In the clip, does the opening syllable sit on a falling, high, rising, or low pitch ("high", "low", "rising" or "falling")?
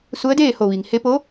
rising